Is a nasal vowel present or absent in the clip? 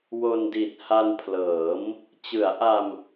absent